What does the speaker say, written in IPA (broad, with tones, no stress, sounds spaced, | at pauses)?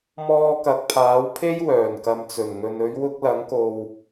m ɔː˧ k ɐ˨˥ k̚ pʰ aː˨˥ w pʰ e˥ j w œː˨˩ n k ɐ˨ m t͡s ɵ˨˩ n ŋ ɵ˨ n ɵ˨˧ ɥ w ʊ˧ k̚ l ɐ˨˥ ŋ k o˨ w